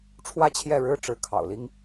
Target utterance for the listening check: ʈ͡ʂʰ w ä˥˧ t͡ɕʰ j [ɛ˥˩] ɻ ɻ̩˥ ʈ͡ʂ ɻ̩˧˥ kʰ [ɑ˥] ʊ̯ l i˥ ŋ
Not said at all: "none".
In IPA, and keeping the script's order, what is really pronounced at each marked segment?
ɛ˥˩, ɑ̰˨˩

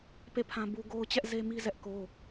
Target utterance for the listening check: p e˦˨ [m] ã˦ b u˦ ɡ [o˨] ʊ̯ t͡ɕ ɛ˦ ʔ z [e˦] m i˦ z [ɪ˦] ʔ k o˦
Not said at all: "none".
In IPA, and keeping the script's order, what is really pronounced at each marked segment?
pʰ, o˦, e˦, ɛ˦

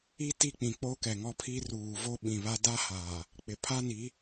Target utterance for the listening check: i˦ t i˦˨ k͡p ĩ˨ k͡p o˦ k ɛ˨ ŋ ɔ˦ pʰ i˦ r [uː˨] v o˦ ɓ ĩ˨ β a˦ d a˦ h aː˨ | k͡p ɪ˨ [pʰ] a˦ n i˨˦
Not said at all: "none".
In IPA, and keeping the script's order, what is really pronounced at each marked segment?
uː˨, pʰ

